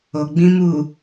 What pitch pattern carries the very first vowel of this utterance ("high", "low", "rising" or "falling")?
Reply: low